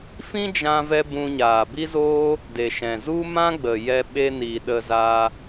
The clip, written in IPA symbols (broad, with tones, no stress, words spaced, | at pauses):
fĩ˦d͡ʒã˧vɛ˧ bũ˧ɲaː˨bi˦zoː˦ | de˨ʃɛ̃˨ zu˦mã˦ɡ͡bə˨jɛ˧ ɓe˧ni˨ ɗə˧za˧